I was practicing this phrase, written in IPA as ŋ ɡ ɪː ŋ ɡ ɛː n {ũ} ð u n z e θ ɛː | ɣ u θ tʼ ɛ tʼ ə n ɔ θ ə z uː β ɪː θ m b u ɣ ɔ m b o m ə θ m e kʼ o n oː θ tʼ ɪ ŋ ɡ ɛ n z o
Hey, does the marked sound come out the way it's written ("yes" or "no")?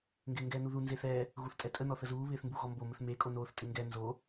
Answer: no